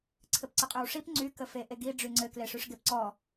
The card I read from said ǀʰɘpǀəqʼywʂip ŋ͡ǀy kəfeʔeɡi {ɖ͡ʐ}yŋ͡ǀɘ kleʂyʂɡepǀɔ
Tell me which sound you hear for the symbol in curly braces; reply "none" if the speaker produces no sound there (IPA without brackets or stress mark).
ɖ͡ʐ